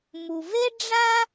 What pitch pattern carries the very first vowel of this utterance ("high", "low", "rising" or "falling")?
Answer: low